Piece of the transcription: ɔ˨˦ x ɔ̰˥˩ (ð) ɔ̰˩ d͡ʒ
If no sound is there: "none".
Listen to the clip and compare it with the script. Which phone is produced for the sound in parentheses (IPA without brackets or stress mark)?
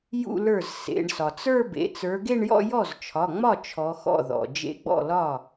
ð